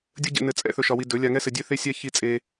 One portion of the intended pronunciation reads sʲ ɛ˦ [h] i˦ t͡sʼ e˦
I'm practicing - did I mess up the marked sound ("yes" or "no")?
yes